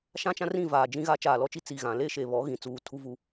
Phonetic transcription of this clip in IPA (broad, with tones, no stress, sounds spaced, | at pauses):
ʃ ã˦ t͡ʃ ã˦ r ĩ˦˨ v aː˨ d͡ʒ ĩ˦ ɣ aː˦ t͡ʃ aː˨ l ɔ˦ t͡ʃ i˦ t͡s i˨ ɣ ã˨ l e˦ ʃ e˨ β ɔ˨˦ ɣ ĩ˨ t͡s uː˨˦ tʰ u˦ v u˦˨